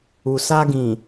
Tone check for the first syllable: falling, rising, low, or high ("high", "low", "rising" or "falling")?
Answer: low